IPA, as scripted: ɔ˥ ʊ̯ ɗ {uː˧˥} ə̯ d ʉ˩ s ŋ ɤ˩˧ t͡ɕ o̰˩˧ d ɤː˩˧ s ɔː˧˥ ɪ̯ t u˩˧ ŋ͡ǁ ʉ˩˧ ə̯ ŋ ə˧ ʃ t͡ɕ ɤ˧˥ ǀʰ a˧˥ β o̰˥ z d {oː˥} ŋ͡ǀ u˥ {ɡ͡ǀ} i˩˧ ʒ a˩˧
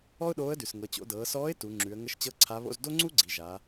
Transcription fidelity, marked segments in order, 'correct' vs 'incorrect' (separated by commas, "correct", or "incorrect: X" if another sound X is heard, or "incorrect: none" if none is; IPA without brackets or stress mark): incorrect: oː˧˥, incorrect: o˥, correct